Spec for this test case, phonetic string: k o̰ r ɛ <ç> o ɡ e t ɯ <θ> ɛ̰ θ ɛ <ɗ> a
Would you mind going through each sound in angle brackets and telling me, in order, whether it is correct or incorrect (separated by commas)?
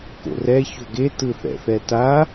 correct, correct, incorrect